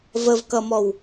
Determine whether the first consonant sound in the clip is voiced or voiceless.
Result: voiced